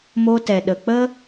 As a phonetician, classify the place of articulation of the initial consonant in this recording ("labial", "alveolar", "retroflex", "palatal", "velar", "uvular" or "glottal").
labial